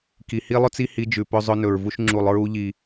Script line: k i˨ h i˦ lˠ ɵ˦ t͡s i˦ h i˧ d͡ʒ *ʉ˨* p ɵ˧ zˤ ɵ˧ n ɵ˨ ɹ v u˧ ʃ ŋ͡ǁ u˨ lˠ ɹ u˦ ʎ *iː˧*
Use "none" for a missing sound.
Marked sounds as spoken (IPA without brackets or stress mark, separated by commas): ʉ˨, i˧